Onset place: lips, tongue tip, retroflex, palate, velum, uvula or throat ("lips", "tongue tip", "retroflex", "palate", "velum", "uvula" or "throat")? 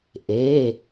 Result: throat